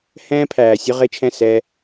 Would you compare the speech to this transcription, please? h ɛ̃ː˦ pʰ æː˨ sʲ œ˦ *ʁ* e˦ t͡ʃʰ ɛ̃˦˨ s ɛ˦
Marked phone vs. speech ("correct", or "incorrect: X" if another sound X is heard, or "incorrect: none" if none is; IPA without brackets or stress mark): correct